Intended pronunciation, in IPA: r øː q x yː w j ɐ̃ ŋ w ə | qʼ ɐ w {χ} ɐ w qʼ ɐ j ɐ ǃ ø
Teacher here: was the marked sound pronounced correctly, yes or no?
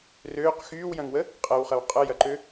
yes